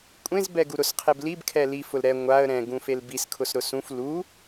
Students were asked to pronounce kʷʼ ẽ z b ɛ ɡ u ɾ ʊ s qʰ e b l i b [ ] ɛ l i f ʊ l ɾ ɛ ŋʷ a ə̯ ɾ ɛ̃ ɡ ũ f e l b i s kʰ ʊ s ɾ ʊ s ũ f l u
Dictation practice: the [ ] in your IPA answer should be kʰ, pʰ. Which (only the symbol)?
kʰ